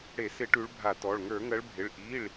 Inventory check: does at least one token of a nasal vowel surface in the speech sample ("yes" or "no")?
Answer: no